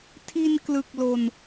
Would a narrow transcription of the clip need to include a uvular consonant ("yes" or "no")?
no